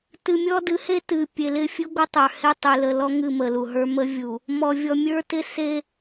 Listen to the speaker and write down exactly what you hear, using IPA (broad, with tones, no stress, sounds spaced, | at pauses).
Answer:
t ɨ˨ mʲ ɔ˦ d ɨ˨˦ h e˦ t ɨ˨ pʲ e˨ l ɪ˦ fʲ ɨ˦ ɡʷ ɪ˦ tˤ ə˞˨ h e˦ tˤ ɨ˨ l ə˨ l ɔ˦ ŋ ɨ˦˨ m ə˨ l u˨ ɦ ə˞˦ m ə˦ vʲ u˨ | m ɔ˨ vʲ ɔ˨ mʲ ə˞˦ t ɪ˦ s e˦